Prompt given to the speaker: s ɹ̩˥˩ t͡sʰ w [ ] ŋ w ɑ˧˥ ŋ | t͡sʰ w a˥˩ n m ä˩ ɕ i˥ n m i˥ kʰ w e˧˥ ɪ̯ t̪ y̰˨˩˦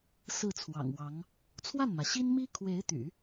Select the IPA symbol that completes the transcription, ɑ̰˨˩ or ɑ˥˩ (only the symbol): ɑ̰˨˩